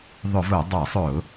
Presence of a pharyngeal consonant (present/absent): absent